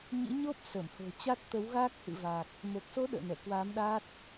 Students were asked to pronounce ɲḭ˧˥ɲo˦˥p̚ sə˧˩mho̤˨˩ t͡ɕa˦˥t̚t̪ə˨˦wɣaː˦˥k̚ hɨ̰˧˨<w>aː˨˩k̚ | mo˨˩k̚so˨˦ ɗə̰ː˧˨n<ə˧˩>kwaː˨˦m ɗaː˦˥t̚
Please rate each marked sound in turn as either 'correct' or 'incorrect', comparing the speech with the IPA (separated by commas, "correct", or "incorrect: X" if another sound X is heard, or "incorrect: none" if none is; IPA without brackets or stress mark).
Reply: incorrect: v, incorrect: ɛ˧˩